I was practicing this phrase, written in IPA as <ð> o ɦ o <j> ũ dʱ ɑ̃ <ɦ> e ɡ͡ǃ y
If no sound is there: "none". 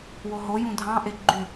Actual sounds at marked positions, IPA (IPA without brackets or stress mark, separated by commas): w, j, ʔ